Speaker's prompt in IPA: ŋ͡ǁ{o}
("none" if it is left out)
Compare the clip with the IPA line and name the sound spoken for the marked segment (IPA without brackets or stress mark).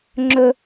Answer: ɵ